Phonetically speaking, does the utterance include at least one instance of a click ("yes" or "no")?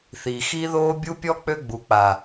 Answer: no